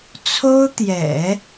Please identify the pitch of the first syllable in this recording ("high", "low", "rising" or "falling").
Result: high